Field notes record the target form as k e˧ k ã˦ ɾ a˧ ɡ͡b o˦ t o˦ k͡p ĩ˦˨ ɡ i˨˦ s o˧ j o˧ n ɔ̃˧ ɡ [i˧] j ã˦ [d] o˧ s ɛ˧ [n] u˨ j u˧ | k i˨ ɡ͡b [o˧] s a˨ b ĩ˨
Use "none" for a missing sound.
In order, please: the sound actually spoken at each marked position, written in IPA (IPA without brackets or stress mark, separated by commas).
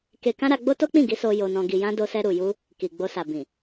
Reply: i˧, d, ɾ, o˧